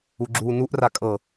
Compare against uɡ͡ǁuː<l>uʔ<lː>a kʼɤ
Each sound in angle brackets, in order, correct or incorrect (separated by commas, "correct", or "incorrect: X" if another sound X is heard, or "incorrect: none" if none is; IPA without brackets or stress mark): incorrect: n, incorrect: r